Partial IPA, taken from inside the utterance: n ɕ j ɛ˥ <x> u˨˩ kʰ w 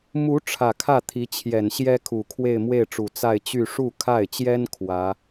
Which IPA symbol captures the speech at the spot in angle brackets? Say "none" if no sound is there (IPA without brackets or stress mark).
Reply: kʰ